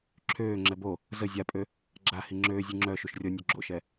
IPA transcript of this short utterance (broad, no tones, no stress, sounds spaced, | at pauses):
ǁʰ øː ŋ͡ǁ ɛ b o | z ə zʲ a pʼ ø | ɡ͡ǁ a h i ŋ͡ǁ øː zʲ u ŋ͡ǁ œ ʃ u ʃ rʲ ɔ nʲ o ɡ͡ǁ o̰ ʃ ɛ